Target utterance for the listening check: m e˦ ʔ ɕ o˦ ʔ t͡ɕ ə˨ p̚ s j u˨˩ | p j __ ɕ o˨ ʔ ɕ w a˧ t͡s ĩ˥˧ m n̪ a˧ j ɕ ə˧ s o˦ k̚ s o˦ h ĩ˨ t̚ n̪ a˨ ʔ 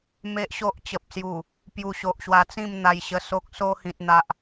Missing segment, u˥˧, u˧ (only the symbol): u˧